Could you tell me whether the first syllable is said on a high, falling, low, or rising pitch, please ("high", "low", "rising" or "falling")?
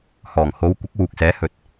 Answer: low